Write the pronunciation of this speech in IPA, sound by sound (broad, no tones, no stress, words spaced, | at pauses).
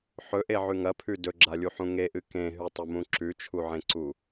ħɵʔeʕʉ ŋɐpʰʉ dɵɡ͡ǁalʲuħũ ŋeʔɨ kẽɦʉtˤɵmũ ǁʉt͡ʃʰuʕẽǀu